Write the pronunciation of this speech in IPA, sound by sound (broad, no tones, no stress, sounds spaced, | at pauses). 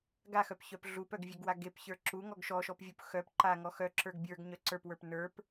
ɡ a x œ p ç œ p ɮ u p œ ɡ vʲ e ɡ w a ɡ e p ç ə˞ ǁ u ŋ ɔ ɡ ʃ ɔ ʃ ɔ p vʲ u p x œ p ǃ a ŋ ɔ x œ ǁ ə˞ ɡ bʲ ə˞ ɡ ɲ œ ǀ ə˞ p w ə˞ p n ə˞ p